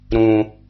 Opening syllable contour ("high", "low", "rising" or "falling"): low